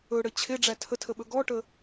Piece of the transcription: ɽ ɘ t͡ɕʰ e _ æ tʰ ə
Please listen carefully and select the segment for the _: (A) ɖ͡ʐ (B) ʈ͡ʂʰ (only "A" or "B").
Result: A